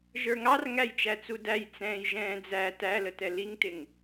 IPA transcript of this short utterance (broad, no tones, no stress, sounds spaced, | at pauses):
ʒ ə˞ ŋ ɑ r ŋ æ j t͡ʃ æ t͡s u d æ j t͡s ɛ̃ː j ʒ ɛ̃ː d͡z æ t æ l ə t ɛ l i ŋ t ɪ ŋ